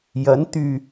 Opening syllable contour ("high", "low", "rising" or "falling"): rising